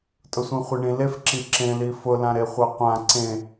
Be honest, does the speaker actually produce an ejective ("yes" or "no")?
yes